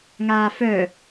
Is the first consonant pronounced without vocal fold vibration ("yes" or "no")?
no